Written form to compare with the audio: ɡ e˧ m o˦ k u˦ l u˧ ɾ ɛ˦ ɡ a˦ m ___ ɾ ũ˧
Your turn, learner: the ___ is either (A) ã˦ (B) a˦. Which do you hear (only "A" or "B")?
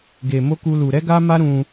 B